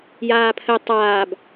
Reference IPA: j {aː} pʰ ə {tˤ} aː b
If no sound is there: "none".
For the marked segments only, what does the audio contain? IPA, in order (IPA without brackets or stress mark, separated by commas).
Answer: aː, tˤ